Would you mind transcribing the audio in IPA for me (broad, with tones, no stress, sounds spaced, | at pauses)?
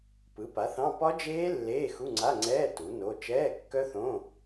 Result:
p ɯ˩˥ p a˩˥ θ ɑ̃˧˥˧ p ɒ˦˥ d͡ʒ eː˦˥ lː eː˧˥˧ x u˧˥˧ ŋ͡ǀ a˧˥˧ ŋ͡ǀ ɛː˧˥˧ t u˩˥ n o˧˥˧ t͡ʃ ɛː˧˥˧ kː œ˦˥ θ õ˧˥˧